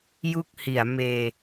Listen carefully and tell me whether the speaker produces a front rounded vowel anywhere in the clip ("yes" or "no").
no